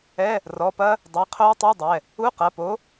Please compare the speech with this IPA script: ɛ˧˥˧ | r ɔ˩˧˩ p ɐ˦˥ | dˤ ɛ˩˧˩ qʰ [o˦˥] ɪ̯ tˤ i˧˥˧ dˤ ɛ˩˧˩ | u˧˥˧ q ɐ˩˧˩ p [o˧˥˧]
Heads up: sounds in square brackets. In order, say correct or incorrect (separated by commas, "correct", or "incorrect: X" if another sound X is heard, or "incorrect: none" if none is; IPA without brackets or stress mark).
correct, incorrect: o˨˥